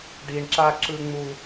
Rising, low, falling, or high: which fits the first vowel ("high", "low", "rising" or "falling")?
high